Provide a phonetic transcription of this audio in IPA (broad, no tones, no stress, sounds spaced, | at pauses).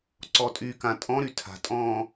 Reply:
ǀ ɔ tʼ y k ã tʼ ɔ̃ ɾ y tʰ a̤ tʼ ɔ̃ː